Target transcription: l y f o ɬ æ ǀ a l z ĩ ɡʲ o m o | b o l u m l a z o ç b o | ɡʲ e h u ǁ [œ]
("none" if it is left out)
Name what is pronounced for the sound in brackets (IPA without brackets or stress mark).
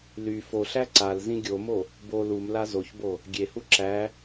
æ